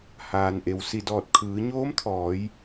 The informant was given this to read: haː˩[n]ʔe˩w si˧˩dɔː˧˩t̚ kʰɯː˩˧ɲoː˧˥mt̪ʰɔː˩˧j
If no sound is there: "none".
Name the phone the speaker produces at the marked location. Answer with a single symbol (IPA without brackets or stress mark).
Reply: n